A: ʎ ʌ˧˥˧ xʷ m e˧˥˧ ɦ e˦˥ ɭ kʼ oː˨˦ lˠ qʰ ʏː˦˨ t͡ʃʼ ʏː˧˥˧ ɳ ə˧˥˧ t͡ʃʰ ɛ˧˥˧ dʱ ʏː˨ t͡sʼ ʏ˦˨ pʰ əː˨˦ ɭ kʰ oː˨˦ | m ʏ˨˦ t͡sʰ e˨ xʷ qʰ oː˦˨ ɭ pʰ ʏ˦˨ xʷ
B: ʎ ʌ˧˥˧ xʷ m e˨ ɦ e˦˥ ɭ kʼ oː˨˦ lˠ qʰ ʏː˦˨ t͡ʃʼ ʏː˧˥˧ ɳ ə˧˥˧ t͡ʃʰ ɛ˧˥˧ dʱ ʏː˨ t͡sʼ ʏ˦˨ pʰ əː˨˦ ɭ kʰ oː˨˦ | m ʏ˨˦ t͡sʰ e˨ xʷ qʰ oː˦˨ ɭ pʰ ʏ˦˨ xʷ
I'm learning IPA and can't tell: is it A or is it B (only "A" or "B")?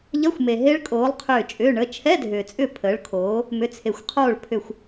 B